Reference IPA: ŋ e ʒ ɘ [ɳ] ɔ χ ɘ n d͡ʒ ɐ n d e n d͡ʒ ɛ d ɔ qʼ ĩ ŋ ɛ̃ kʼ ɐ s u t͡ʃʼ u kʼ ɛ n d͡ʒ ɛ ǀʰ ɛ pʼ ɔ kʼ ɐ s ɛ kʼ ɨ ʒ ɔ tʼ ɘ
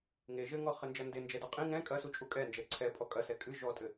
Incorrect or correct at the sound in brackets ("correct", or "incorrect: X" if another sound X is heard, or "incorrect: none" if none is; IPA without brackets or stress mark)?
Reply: incorrect: ŋ